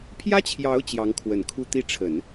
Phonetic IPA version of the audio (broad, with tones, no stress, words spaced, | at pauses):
pʰjä˥t͡ɕʰjɑ˧˥ʊ̯ t͡ɕjɑ˧˥ŋkʰwə˨˩nkʰu˥˧ t̪i˥˩ʈ͡ʂʰə˨˩˦n